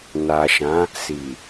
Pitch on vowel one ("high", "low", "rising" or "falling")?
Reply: low